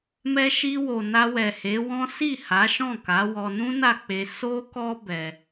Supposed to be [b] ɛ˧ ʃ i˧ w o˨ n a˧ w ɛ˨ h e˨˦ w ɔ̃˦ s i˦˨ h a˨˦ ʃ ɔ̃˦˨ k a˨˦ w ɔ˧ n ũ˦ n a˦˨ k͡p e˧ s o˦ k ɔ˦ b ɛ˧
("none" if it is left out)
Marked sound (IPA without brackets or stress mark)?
m